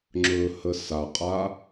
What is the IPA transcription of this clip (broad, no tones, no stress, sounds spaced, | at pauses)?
ŋ͡ǁ ɵː h ə s a qʼ a